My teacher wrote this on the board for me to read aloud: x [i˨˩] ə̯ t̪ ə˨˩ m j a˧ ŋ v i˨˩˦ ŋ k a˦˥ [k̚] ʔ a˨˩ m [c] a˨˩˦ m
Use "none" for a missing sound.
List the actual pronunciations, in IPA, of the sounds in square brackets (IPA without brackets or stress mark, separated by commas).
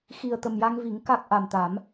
i˨˩, k̚, t̪